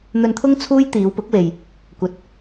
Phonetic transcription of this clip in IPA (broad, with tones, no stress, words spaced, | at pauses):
n̪ɵ˧nt̪ʰʊ˥ŋ t͡sʰuː˥j t̪iː˨˧wpʊ˨˥k̚we˨j | kʷɐ˨t̚